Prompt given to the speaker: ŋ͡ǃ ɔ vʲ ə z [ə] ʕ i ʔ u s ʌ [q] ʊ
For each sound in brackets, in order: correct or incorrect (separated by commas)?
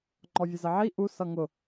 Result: correct, incorrect